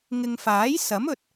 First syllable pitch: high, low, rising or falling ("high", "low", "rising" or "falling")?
low